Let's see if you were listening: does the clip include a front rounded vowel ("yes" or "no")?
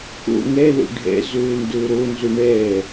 yes